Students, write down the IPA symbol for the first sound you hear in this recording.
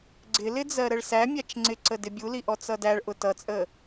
ɡ͡ǀ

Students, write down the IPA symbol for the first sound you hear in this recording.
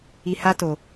i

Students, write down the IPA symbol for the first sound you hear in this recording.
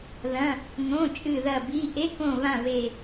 ð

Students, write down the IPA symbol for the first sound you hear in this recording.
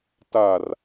t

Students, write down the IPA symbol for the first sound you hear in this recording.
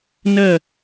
n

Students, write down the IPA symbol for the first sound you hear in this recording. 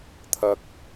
t̪ʰ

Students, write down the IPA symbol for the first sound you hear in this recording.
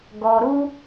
ɡ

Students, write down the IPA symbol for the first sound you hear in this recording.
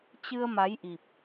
t͡ɕ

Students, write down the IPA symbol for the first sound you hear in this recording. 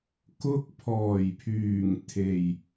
k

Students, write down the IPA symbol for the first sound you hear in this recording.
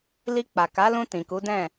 l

